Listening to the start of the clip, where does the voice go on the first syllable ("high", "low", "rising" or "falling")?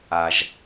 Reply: low